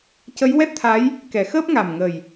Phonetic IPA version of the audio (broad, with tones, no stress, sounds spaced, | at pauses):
c ə˧˥ j w ɛ˦˥ t̚ t̪ʰ a˧˥ j | k ɛ˨˩˦ x əː˦˥ p̚ ŋ a˨˩ m ŋ ə˨˩ j